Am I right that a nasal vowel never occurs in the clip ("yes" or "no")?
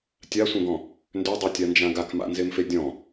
no